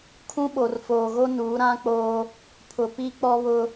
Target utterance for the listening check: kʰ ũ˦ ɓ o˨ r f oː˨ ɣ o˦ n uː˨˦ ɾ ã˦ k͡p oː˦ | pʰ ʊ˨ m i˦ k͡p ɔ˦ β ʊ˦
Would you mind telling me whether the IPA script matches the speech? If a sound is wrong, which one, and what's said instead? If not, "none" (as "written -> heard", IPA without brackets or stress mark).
m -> p